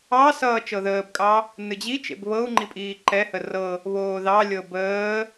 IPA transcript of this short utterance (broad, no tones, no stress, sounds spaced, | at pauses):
ɑ s ʌː t͡ʃ ɤ ð əː b kʼ ɑ | n ɨ d͡ʑ i t͡ʃ ḛ b β ɤ u̯ ŋ͡ǃ i pʼ iː ǃ ɛ h ə r ɤ | β oː ð ɑ lʲ ɤ b əː